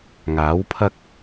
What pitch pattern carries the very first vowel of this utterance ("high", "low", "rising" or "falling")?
rising